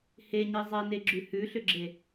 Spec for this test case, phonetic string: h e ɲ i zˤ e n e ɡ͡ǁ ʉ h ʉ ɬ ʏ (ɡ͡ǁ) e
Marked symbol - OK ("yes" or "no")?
yes